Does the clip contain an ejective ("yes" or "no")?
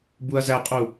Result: yes